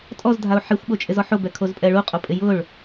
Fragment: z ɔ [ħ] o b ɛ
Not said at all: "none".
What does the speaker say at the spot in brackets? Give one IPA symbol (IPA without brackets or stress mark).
ħ